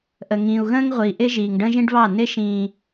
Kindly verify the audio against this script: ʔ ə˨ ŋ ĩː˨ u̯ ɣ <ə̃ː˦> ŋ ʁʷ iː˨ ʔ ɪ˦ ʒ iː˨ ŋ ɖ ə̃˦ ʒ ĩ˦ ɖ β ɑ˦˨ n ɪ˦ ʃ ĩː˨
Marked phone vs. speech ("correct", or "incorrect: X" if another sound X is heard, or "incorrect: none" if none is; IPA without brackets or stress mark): correct